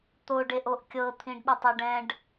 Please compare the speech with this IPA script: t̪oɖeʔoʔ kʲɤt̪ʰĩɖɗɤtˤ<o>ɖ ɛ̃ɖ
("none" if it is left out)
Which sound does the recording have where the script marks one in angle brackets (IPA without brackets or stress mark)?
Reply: o